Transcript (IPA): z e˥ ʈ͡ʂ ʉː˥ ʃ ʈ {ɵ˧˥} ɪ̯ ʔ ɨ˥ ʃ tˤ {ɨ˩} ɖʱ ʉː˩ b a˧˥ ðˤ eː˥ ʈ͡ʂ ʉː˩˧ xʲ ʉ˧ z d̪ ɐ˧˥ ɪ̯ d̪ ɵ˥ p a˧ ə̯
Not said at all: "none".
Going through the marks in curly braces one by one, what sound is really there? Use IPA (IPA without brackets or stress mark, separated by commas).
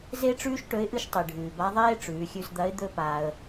ɵ˧˥, i˩